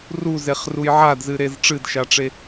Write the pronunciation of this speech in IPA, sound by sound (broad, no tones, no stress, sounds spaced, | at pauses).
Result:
r u z e χ r u j ʕ a d z ɨ ɾ e z ʈ͡ʂ ɨ d ʃ a ʈ͡ʂ e